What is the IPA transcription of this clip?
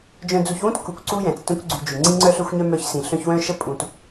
d͡ʒ œ̃˨ d͡z u˨ ç w ũ˥ t k u˨ kʷ ǀ u˥ j ɛ̃˩ t͡s t œ̃˦ kʷ ɡ͡ǀ y˨ d͡ʒ y˩ ŋ͡ǀ ĩ˦ ŋ͡ǀ œ˦ ɬ œ˦ xʷ ɲ œ˦ m œ˦ ç s ĩ˨ ɬ œ̃˦ ç w œ̃˥ ʃ ə˥ pʼ ũ˨ t

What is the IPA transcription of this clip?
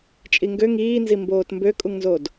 t͡ʃʼ i ŋ ɡ ø ŋ iː n z i m b oː t m b ø kʼ u ŋ n z o d

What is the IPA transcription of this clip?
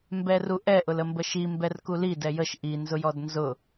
m b ɛ r u ʔ ɛ ʔ ʊ l ə m b ə ʃ i m b ɛ r k u l i d ɛ j ə ʃ ʔ i n z ʊ j ɔ d n z ʊ

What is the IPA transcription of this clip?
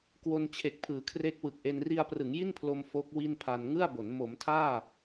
k w o˧ n t͡ɕʰ e˨˩ k̚ pʰ ɯː˩˦ kʰ r e˦˥ k̚ w ɯ˨˩ k̚ ʔ e˧ n r i˧ a̯ p r ɯ˩˦ ŋ j i˥˩ n pʰ l o˧ m f o˦˥ k̚ w i˥˩ n pʰ a˧ n ŋ ɯ˥˩ a̯ b o˩˦ n m o˩˦ m tʰ aː˥˩

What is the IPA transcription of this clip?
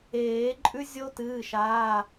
eː˨˩˦ ǃʼ ʉ˦˥ zʲ o˦˥ t ɨː˩˧˩ ʃ aː˩˧˩

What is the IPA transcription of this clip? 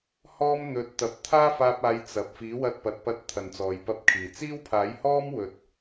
h ɔː˥ m n̪ ɵ˨˥ t̚ t̪ ɐ˨ p̚ t̪ʰ aː˥ f aː˧ p̚ aː˨˧ j t͡s ɐ˨ p̚ f iː˨˥ w ɐ˧ t̚ p ɐ˨˥ t̚ p ɐ˧ t̚ t̪ʰ ɐ˨ n t͡s ɔː˨ j p ɐ˧ p̚ kʰ iː˨˩ t͡s iː˥ w pʰ aː˨˥ j h ɔː˥ m w ɵ˨ t̚

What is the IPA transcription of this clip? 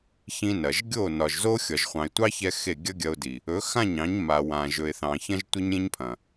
ç ĩ˧ n ɐ˨ ʒ ɡʲ o˦˨ n ɒ˨ ʒ z o˦ xʲ ɒ˨ ʒ χʷ ɑ̃˨ ɪ̯ tʷ ɑ˦ ç ɛ˧ x e˦˨ ɡʲ ɐ˦ ɡʲ ɐ˧ ʊ̯ d i˨ | ɵ˨˦ x ã˦˨ ɲ ɑ̃˨˦ ɲ m a˨ w ã˨ ʒ ɵ˨ ɪ̯ θ ɑ̃˨ ç ɐ̃˦ ʒ tʷ e˦ ɲ ɾʲ ẽ˦ ɲ pʰ ɐ̃˨

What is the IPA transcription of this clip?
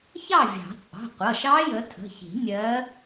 ç ɑ˥˨ vʲ ɑ̤˨˩˦ t͡sʼ ɑ̤˩˧˩ qʷ ʌ˩˧˩ ʃ ɑ˦˥ j ə˨˦ tʰ ə̤˩˧˩ ç i̤˨˩˦ nʲ ɜ˨˦

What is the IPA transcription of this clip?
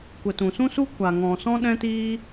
kʷ ə˨ t ũ˨ s ũ˦ s u˦ kʷ a˨ ŋ ɔ̃˨ s ɔ̃˦ ɗ ɛ̃˦ t iː˦

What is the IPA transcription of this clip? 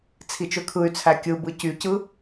t͡sʰ i t͡ʃ ø kʰ ɯ y̯ t͡sʰ æ kʲ ɯ b ɯ c y c ɯ

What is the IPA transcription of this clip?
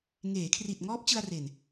ŋ eː˩˦ kʰ r i˨˩ t̚ ŋ ɔː˦˥ p̚ t͡ɕ ɯ˧ a̯ r e˨˩ n

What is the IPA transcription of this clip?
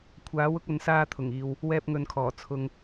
kʷʰ aː˨˥ w ʊ˨˥ k̚ ɐ˨˧ n s aː˧ t̪ʰ ʊ˨˩ ŋ iː˨ w | w ɛː˧ p̚ ŋ ɵ˨ n kʰ ɔː˨˩ t͡sʰ ʊ˧ ŋ

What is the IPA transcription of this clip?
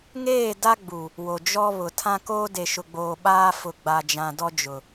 ŋ eː˦˨ d a˦ ɡ͡b u˨ | w o˨ d͡ʒ ɔ˦ β ʊ˨ tʰ ã˦ k oː˦ d e˨ ʃ ʊ˨ ɡ͡b oː˨ ɓ aː˦ f ʊ˨ ɡ͡b a˨ d͡ʒ ã˨ d ɔ˦ d͡ʒ ʊ˨

